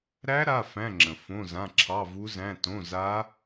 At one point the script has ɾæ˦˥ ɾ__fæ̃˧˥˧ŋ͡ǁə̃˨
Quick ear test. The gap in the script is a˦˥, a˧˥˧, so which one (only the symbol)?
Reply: a˧˥˧